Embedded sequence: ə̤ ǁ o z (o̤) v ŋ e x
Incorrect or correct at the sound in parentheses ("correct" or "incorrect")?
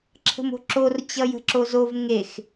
incorrect